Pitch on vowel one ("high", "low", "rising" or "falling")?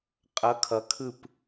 rising